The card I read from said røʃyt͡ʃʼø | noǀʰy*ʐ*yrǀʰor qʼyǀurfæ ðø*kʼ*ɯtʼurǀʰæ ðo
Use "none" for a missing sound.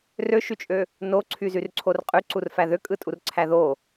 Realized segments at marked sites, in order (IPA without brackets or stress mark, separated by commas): z, kʼ